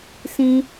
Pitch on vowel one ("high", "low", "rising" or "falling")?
high